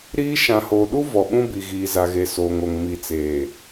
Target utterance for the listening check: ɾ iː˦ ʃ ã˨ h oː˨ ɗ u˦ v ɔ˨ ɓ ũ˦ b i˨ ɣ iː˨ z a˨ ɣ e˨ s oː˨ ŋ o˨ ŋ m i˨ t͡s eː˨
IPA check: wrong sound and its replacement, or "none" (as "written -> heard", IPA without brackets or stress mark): none